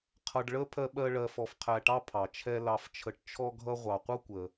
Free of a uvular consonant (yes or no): no